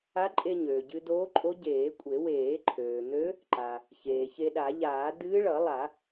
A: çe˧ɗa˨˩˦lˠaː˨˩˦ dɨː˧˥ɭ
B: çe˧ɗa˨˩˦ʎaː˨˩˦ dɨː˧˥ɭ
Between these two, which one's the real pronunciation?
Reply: B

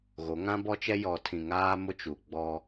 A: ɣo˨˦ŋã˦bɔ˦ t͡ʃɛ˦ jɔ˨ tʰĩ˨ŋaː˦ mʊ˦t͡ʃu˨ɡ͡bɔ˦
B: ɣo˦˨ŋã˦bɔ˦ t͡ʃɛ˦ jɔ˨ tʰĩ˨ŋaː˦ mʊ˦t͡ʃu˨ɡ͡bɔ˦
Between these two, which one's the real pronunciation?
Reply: A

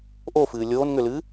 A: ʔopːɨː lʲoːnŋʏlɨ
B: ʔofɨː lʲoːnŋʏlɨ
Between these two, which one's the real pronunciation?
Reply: B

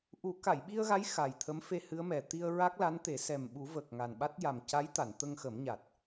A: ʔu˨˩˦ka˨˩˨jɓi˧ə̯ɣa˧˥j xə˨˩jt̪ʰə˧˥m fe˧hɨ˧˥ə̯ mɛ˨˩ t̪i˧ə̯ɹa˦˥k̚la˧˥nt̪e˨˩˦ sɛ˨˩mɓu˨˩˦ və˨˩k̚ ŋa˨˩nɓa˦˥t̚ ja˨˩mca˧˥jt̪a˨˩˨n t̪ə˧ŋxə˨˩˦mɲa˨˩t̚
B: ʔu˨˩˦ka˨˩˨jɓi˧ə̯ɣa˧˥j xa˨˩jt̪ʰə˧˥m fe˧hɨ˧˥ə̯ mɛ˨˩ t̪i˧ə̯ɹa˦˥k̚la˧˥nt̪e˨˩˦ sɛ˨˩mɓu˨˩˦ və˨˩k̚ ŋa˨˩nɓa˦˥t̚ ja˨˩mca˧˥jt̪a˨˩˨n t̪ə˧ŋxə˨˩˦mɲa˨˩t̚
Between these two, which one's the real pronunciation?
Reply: B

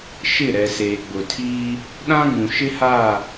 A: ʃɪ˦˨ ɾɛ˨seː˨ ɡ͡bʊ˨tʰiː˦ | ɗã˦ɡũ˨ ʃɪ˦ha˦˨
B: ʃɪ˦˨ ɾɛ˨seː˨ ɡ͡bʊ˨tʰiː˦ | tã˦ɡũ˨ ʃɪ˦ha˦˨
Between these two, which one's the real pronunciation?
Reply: A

